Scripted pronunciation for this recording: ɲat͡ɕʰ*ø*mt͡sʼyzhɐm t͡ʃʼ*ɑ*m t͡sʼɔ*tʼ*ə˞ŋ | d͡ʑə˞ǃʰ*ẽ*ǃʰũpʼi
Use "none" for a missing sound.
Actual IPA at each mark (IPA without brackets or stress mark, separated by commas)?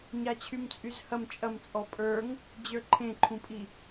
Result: y, ɐ, pʼ, ẽ